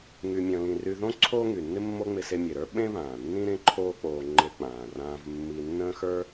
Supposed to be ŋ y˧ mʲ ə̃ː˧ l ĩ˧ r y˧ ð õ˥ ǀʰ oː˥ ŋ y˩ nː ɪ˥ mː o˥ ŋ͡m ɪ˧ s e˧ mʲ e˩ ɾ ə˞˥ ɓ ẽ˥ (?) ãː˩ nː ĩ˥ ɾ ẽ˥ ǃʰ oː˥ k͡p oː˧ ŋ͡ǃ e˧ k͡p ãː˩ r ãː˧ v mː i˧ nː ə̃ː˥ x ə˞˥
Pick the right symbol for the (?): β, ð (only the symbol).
β